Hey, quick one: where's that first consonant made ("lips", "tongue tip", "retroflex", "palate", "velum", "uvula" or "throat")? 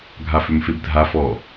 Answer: velum